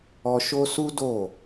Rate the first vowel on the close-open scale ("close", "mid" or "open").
mid